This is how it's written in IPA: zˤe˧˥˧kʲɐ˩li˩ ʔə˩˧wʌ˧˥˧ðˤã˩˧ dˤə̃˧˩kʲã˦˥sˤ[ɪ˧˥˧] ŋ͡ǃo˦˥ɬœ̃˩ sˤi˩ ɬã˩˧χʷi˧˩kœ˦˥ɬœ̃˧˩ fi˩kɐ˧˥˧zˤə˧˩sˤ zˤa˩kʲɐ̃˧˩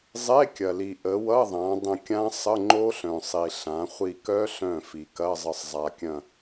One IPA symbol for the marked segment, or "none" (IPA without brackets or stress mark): ə˧˥˧